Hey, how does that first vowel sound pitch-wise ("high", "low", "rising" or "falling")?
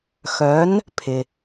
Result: rising